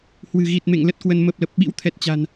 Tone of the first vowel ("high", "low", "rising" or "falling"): low